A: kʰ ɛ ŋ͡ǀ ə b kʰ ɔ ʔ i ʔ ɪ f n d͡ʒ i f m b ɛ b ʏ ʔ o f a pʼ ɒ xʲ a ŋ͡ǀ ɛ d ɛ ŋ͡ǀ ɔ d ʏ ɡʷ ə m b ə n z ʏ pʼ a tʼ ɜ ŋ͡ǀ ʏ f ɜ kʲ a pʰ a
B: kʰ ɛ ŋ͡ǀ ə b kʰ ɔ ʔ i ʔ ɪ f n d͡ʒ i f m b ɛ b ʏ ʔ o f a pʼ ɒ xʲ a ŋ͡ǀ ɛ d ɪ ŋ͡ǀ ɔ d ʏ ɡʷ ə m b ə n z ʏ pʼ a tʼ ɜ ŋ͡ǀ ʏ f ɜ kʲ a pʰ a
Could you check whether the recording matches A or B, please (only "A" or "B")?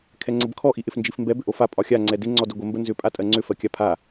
B